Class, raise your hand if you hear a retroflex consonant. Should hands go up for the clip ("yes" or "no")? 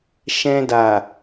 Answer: no